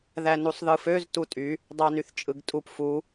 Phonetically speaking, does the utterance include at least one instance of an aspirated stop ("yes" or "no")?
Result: no